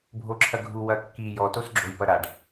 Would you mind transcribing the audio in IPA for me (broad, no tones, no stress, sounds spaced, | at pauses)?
bʱ o ǁʰ ɐ ɡʱ u w ɐ kː i j ɔ t o s ɡ͡ǁ o j p ɐ ɾ a ɖ